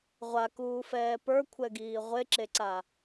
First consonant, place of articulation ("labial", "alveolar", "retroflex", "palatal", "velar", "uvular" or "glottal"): uvular